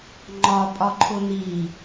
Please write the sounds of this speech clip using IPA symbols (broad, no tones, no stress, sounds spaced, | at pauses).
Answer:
ŋ͡ǃ ɒ pʼ ɒ ǃʰ ʊ n̪ i